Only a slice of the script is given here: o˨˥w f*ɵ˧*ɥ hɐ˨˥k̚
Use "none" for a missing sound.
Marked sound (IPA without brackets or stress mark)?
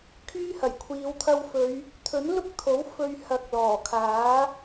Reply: ɵ˧